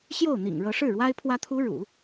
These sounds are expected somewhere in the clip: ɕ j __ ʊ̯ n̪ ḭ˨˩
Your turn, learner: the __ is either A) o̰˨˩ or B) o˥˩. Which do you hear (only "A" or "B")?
B